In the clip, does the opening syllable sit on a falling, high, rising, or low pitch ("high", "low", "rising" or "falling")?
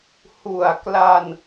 low